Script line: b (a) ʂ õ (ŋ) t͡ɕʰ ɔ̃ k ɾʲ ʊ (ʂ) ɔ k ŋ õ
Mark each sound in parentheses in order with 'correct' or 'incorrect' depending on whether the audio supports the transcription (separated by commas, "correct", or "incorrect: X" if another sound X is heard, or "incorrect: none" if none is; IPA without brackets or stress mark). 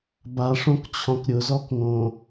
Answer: correct, incorrect: k, incorrect: z